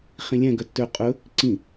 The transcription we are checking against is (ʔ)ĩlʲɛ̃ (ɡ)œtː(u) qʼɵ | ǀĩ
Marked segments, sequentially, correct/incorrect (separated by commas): incorrect, correct, incorrect